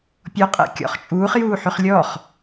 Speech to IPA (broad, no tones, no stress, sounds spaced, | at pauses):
pʲ ɔ qʼ ɛ̰ kʲ ɔ̰ χ t͡ʃʼ uː χ j uː ħ y χ lʲ ɔ χ